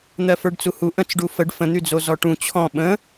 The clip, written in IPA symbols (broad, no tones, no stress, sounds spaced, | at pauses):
n̪ ɜ f ə˞ ɖ t͡s u h u ʔ ə̃ t͡s ɖ u f ə ɖ f ə̃ n̪ y d͡z o z ɔ ʈ ũ t͡ɕʰ ɔ̃ ɓ ə̃